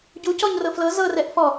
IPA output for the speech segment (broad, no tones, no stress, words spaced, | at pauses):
ɟu cɔɲrɤflɤ zɤ rɛʔfɔ